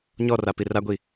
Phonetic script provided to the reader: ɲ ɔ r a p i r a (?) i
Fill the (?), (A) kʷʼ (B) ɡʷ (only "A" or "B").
B